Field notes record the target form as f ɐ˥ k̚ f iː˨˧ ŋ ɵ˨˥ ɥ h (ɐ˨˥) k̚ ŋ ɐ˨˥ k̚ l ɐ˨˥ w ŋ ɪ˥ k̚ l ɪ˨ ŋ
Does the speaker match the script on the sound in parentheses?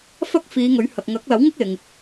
no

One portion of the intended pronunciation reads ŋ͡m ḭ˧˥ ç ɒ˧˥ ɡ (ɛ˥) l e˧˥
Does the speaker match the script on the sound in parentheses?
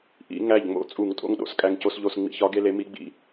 no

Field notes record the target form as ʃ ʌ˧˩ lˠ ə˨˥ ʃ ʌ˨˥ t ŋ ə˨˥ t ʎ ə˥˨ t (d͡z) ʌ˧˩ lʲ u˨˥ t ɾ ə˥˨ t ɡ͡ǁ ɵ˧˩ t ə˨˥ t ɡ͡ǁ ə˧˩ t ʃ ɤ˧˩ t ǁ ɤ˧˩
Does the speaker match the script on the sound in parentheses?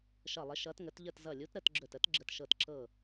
no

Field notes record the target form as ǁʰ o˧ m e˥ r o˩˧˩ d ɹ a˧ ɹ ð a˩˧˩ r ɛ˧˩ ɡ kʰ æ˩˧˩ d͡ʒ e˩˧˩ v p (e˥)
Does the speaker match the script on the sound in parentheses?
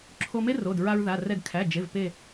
no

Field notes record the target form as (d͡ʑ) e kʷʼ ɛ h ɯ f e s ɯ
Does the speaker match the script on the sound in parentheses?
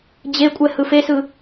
yes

